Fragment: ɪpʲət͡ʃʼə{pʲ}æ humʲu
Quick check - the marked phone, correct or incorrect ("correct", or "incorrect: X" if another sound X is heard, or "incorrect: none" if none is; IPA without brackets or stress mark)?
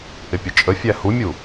incorrect: fʲ